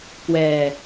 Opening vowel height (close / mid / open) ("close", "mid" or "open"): mid